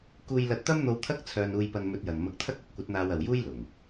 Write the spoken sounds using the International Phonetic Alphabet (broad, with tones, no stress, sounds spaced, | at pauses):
k uː˧ j l ɐ˧ t̚ t̪ ɐ˥ m n̪ o˧ w t̪ʰ ɐ˥ k̚ t͡sʰ œː˧ n uː˧ j p ɐ˧ n m ɵ˧ t̚ j ɐ˨ n m ɐ˧ k̚ t̪ʰ ɐ˥ k̚ ɐ˨˥ p̚ kʷ ɐ˨˥ t̚ n̪ aː˧ w ɐ˨ w j uː˥ j l ʊ˨˩ ŋ